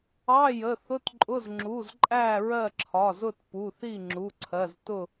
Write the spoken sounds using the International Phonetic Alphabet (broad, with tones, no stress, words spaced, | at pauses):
ɑ˧˥˧jə˩˧˩ θʊ˧˥˧tǃʼʊ˧˥˧z ŋ͡ǁu˩˧˩z ǃʼæ˥˨ɹɜ˥˨ ǁʰɒ˩˧˩zʊ˥˨tpu˩˧˩θi˥˨ ŋ͡ǁu˩˧˩ǀʰɜ˩˧˩ztʊ˥˨